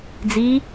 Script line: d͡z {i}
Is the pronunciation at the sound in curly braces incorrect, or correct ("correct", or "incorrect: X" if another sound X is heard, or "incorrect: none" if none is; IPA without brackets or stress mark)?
correct